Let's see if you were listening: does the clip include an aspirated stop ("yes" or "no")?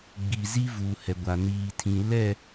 yes